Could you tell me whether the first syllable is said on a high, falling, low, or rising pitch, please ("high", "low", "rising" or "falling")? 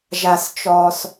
low